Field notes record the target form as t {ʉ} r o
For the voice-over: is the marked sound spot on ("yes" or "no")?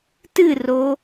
no